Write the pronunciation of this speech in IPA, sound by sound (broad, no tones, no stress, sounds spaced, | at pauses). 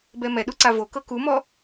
b ɛ m ɛ ɗ u ǀ a v o k ɤ k u m ɔ